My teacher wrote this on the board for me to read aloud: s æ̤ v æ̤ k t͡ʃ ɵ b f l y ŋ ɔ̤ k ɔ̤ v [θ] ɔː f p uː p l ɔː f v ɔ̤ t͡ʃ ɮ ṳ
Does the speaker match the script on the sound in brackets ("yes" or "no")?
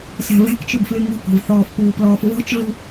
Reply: yes